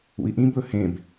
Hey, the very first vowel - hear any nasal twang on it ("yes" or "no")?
no